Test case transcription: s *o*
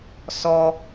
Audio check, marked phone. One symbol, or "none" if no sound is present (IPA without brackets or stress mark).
ɔ